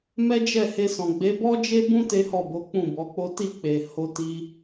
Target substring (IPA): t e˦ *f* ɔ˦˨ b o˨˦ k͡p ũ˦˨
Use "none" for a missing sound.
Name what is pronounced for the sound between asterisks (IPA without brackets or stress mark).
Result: h